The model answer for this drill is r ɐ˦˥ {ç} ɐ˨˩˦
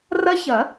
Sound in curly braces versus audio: correct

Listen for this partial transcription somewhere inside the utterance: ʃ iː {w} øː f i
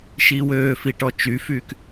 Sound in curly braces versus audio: correct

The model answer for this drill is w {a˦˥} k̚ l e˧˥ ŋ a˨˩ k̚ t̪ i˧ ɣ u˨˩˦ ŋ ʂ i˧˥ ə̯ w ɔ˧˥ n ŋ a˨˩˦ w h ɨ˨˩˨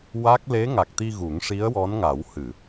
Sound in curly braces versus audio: correct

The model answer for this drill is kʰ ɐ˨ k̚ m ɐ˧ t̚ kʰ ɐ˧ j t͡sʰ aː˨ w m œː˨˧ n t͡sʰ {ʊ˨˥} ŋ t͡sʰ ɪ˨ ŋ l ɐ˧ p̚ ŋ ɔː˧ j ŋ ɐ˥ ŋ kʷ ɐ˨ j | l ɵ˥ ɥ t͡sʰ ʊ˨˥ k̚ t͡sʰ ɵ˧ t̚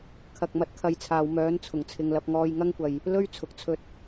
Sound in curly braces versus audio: incorrect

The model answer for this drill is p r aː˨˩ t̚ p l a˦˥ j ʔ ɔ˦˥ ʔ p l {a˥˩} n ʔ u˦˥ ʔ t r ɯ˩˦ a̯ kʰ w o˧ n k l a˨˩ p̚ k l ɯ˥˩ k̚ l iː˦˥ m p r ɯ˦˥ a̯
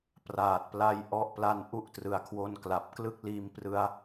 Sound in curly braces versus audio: incorrect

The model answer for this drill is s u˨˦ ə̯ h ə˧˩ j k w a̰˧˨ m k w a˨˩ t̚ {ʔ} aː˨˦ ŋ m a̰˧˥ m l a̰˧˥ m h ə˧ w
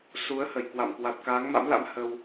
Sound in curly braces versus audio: incorrect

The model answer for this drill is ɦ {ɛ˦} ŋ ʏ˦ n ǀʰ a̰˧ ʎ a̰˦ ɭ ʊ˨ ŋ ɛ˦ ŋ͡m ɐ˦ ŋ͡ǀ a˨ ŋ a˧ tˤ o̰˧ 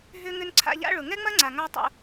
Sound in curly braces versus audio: incorrect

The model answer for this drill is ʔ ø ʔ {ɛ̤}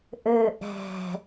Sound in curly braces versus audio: correct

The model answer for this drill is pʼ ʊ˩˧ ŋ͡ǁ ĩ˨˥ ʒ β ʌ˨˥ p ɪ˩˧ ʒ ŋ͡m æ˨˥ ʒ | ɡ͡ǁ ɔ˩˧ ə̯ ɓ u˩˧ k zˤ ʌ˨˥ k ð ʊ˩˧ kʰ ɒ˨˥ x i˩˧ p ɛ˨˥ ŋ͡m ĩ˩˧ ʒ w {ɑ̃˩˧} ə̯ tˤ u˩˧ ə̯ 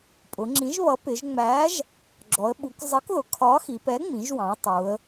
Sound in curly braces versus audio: correct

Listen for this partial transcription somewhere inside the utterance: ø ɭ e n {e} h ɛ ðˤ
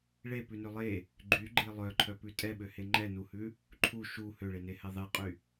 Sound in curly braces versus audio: correct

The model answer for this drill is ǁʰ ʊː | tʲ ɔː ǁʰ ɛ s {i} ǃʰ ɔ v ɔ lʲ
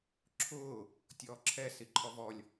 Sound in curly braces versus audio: correct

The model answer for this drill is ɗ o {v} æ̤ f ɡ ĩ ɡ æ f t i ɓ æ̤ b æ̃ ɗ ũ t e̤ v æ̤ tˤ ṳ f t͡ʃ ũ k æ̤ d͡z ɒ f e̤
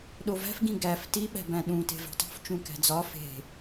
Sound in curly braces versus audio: correct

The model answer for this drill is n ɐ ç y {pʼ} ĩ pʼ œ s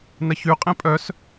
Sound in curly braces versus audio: incorrect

